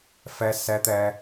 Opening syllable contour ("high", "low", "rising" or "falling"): high